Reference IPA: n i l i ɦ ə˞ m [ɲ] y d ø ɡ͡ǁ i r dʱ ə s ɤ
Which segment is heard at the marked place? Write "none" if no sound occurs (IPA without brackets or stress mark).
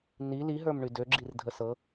ɳ